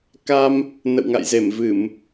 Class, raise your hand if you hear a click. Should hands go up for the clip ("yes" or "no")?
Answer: no